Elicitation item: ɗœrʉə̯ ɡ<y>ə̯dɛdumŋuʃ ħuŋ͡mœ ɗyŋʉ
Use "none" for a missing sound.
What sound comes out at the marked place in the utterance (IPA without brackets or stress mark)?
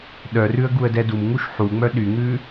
u